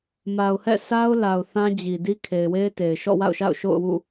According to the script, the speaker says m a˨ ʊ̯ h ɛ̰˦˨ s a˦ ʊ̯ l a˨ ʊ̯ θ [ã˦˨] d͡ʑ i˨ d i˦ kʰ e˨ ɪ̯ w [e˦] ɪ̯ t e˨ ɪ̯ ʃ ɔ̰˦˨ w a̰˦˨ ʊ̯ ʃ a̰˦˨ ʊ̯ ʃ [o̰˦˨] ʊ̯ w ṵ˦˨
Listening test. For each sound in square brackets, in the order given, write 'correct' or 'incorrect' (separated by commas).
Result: incorrect, correct, correct